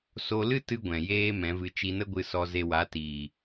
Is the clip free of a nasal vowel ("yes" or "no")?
no